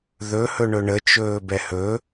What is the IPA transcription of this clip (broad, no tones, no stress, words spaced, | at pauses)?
ðɵhɵɳɵ ɳət͡ʃɵː bɛhɵ